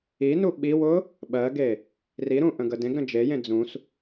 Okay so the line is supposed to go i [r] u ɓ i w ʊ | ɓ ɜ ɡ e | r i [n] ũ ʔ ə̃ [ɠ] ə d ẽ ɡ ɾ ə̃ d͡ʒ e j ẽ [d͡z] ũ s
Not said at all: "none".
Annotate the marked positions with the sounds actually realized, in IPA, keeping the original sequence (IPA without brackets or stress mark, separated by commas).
n, ɾ, ɡ, d͡z